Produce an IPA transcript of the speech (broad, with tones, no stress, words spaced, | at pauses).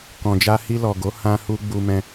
kɔ̃˨d͡ʒa˧ hi˧lɔ˨ɡo˨˦ hã˧hu˧ ɡ͡bu˦mɛ̃˦